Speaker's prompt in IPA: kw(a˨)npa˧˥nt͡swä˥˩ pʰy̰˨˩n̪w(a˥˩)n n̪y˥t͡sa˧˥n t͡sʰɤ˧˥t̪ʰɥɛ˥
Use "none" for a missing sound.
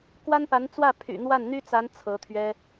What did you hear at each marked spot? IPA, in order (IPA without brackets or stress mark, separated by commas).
a˥, a˥˩